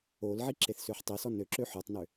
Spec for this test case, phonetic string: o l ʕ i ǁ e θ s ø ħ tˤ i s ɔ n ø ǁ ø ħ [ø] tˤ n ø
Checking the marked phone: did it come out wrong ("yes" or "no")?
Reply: no